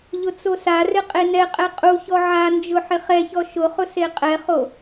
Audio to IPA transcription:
ʎ ʊ t͡s o s a r ɪ qʼ e n ɛ qʼ ɛ qʼ u ç ɔ ʕ a n d͡ʒ ʊ ħ ɪ χ ɛ ç ɔ ʃ ʊ χ ʊ s e qʼ ɛ χ o

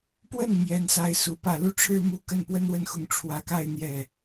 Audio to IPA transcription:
p w ə˥˩ n m j ɛ˧˥ n s a˧˥ ɪ̯ s u˧˥ p ä˥˧ l u˥˩ ʈ͡ʂʰ ɻ̩˥ m u˥ k ə˥˩ n p w ə˥ n w ə˥˩ n x ʊ˧˥ ŋ ʈ͡ʂʰ w ä˨˩ k a˥˧ ɪ̯ n̪ j ɛ˥˩

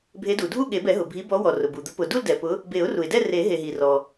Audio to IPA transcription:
bʱ e˨˦ d u˩ dʱ u˥˧ ɠ e˨˩˦ b ɛ˨˩˦ ɦ ʊ˩ bʱ i˨˦ b ɔ˨˦ w ɔ˩ r ʊ˩ b u˩ d̪ ʊ˨˦ p ʊ˩ d u˥˧ l d ɛ˩ p ʊ˨˦ | b e˨˩˦ ʊ̯ r u˩ ɪ̯ d ɛ˥˧ r e˨˩˦ ɦ e˩ ɦ i˩ r ɔ˩

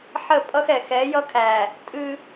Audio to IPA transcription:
ħ ə˦˨ pʼ ʌ˦ x ɛ˨ x ɛ˨˦ j ʌ˦ kʰ æ˨ | tʼ ɨ˦

